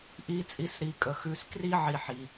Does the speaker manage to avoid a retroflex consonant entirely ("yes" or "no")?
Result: yes